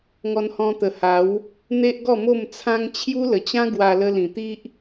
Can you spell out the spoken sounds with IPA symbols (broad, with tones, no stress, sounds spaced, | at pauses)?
ŋ ɔ˧ n h ɔ̃˧ t̪ ə˨˩ h a˨˦ w | n̪ e˦ ʔ ɡ ɔ˥˧ m o˥˧ m t͡sʰ ã˦ ŋ t͡ɕʰ j u˦ l ə˨˩ t͡ɕ ã˦ ɡ w a˧ l ə˧ l ĩ˨˩ t̪ i˦ ʔ